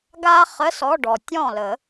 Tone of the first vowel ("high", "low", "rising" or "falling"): high